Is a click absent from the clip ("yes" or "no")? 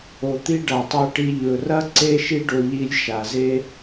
no